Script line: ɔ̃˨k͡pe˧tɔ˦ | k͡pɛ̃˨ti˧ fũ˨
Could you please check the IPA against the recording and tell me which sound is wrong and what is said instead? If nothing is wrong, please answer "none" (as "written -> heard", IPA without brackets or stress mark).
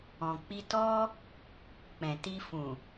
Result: e˧ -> i˧